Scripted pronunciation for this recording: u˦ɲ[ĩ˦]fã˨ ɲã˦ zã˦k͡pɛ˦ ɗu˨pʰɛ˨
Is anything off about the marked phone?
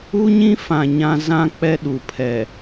no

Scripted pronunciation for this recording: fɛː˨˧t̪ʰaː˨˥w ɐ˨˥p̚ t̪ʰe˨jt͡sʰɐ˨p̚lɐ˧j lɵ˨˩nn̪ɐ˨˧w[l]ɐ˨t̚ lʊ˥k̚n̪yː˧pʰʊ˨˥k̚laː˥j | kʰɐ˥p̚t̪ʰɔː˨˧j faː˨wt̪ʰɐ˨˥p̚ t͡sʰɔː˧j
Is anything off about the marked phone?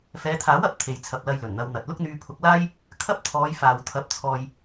yes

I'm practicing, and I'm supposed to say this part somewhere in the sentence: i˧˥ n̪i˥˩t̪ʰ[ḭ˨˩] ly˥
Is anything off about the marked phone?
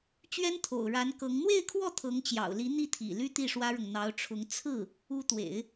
no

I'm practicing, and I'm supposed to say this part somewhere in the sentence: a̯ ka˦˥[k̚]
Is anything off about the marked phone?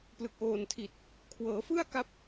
yes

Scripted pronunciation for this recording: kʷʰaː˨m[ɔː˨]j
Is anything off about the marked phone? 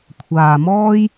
yes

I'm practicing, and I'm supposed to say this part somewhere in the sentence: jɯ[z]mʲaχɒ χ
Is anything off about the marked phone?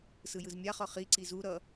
no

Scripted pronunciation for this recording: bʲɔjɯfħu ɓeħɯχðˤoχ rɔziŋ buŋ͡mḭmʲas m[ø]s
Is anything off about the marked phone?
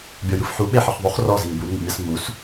yes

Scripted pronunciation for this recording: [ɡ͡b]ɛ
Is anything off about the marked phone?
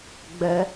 no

